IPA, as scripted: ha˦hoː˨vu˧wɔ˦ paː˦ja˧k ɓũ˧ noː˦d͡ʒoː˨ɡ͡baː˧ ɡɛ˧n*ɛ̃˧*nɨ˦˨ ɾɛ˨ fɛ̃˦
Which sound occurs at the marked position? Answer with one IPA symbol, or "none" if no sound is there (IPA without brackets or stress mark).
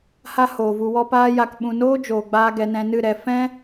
ɛ̃˧